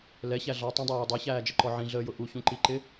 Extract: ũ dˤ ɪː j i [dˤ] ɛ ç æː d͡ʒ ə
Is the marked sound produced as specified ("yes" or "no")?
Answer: yes